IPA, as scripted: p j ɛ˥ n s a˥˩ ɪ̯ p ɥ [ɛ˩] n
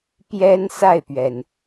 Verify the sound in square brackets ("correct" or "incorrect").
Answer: correct